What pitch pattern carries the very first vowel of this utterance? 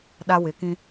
high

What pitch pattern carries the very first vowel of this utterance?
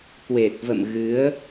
low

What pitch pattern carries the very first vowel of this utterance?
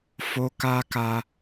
high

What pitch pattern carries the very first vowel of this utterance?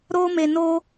high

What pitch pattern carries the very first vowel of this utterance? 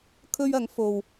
high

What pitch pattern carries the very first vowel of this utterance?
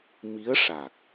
rising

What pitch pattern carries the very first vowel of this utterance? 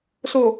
low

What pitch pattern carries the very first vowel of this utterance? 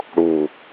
low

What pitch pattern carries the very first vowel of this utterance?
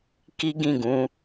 high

